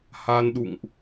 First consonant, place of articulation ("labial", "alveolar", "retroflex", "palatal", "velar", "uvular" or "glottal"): glottal